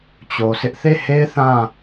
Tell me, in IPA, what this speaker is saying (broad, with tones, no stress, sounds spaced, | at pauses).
t͡ɕ o˨ s ɪ˦ ʔ θ e˦˨ h e˦ ɪ̯ θ ã˦˨